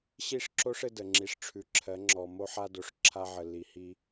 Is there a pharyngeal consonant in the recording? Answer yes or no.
yes